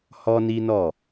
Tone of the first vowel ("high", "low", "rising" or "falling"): high